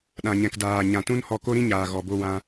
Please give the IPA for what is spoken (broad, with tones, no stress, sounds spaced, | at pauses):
ɗ ã˨ ɲ ɛ̃˨ k d aː˨ ɲ ã˨ t ũ˦ n h ɔ˧ k o˦ ɾ ĩ˦ ɲ aː˨ ɣ ɔ˨ b o˧ w ã˧